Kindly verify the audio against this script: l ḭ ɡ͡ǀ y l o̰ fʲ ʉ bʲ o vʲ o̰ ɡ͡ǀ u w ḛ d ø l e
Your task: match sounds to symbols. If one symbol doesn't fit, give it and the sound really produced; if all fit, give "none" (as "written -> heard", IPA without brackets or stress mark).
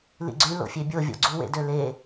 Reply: ʉ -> ø